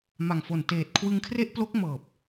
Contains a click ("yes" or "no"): no